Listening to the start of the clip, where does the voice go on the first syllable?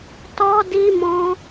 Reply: high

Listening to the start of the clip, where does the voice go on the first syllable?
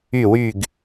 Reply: falling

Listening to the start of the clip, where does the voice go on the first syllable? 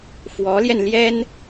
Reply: rising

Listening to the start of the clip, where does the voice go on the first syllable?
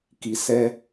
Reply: low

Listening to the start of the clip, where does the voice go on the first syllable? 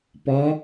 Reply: rising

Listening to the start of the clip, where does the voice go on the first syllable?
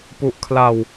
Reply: low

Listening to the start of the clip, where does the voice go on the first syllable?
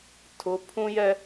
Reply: rising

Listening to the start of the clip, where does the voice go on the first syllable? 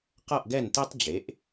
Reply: falling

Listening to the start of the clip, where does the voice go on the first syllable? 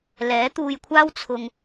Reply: rising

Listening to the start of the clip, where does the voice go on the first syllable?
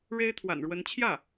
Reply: high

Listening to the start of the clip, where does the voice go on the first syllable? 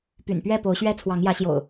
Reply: low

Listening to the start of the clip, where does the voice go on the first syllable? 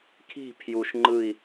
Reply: falling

